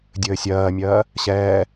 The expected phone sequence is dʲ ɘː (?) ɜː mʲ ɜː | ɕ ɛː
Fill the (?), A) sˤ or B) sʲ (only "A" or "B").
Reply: B